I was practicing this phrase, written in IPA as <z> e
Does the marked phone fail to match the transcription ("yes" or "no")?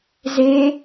no